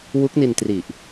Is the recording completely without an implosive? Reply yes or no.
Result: yes